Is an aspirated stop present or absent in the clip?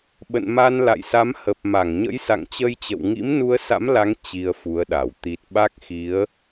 absent